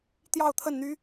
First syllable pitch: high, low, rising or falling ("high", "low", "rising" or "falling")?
falling